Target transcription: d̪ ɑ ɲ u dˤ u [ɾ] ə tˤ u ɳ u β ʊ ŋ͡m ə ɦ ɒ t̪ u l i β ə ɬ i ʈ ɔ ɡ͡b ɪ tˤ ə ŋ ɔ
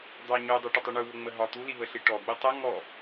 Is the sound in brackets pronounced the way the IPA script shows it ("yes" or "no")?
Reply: no